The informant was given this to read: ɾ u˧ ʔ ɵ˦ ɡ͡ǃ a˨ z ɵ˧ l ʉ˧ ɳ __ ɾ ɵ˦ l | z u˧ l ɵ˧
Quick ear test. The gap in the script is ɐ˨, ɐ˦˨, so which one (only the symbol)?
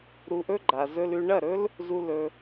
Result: ɐ˦˨